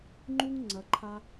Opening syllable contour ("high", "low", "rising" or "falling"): high